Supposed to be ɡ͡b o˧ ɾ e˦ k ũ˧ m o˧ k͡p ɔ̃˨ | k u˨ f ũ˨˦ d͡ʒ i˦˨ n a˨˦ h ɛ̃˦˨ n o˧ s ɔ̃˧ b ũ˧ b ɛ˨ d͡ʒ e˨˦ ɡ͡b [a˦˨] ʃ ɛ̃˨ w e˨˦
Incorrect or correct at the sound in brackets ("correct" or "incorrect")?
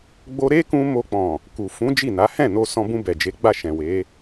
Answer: correct